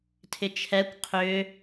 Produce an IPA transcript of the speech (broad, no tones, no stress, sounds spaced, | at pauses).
tʰ ɪ t͡ʃʰ ɛ kʷ qʰ ʏ